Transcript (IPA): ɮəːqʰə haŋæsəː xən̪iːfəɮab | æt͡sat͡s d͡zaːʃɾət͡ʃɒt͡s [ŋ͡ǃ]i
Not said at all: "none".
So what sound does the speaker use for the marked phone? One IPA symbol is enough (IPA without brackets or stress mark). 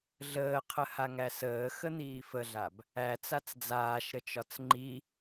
ŋ͡ǃ